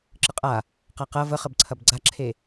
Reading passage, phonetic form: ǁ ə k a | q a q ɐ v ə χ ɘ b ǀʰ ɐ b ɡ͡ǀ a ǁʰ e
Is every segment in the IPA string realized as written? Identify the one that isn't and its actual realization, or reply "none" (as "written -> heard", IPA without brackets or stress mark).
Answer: k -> qʼ